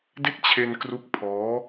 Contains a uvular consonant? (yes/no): no